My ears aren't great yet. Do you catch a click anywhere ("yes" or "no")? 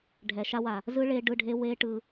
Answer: no